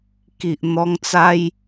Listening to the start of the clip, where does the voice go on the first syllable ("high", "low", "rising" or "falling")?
low